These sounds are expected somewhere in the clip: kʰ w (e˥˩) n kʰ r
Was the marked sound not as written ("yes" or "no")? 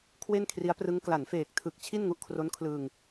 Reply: no